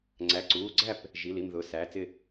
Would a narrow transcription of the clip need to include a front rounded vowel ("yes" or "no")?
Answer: no